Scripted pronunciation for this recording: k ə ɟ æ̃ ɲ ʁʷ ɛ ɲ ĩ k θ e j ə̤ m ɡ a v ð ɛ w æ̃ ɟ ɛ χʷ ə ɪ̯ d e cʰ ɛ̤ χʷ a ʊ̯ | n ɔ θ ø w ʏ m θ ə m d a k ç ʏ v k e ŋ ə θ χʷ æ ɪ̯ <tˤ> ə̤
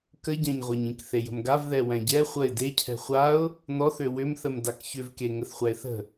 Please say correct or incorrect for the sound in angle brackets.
incorrect